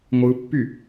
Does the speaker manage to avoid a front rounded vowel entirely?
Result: no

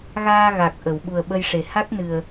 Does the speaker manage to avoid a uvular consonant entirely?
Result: yes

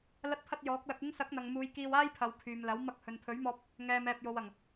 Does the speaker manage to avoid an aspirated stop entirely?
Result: no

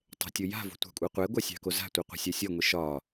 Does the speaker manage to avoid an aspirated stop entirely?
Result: yes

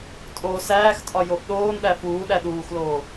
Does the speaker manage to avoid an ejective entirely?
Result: no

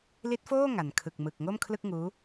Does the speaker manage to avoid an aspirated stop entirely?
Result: no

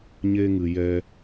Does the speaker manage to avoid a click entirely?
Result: yes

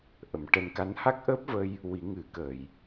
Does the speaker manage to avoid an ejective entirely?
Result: yes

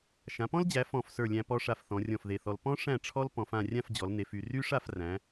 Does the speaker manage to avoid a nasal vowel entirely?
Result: no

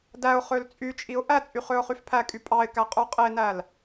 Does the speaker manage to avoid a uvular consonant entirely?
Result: no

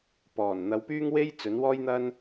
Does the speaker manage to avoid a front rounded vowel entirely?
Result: no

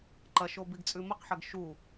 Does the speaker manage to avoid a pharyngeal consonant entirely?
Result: no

